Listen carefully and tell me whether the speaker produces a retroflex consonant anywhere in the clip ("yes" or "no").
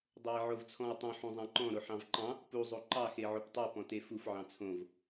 no